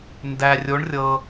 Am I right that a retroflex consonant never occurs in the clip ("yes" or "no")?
no